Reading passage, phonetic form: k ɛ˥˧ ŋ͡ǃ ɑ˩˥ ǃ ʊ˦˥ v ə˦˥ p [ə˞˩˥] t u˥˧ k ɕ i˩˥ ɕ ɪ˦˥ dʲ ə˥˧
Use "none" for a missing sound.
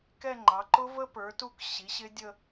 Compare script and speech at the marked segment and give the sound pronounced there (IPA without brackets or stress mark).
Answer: ə˞˩˥